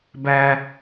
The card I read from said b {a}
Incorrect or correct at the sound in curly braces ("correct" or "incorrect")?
incorrect